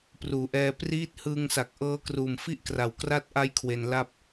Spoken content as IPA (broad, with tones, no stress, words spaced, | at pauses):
pruː˩˦ʔɛː˧ priː˦˥t̚hɯː˧ŋsa˨˩k̚ʔɤː˦˥ kruː˨˩mfi˥˩ʔkra˨˩w kra˦˥t̚ʔa˦˥j kʰwe˧nla˥˩p̚